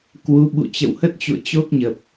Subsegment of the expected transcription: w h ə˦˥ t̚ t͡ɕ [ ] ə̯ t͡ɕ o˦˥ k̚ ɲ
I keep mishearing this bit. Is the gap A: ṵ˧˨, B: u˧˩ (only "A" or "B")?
A